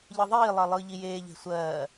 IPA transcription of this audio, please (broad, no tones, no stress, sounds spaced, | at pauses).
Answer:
ʎ ɯ ðˤ iː lˠ ɜ lˠ ɯː ʎ i j eː ʎ e̤ sʷ ɜː